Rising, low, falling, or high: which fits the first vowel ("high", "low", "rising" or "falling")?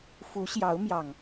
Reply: rising